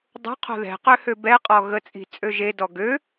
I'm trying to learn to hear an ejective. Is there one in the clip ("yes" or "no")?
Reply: yes